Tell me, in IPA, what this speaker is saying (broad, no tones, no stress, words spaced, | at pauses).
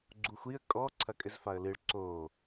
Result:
ɡ͡ǀuxʷiə̯ kʼɔ ǀʰɐkʼɘzfaə̯lɨɭ ǀo